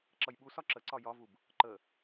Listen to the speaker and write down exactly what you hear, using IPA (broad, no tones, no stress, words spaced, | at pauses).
ǁʌjɓusɒ ǁəǀɒ jɒvub | ǃə